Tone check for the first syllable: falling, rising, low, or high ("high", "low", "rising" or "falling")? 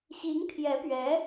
rising